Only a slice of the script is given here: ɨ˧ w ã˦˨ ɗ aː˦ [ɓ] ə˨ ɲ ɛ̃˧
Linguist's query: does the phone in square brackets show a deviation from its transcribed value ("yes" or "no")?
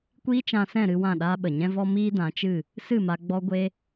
no